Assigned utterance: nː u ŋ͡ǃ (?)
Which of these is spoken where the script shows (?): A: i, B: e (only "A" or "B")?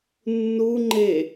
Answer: B